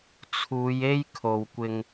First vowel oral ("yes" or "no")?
yes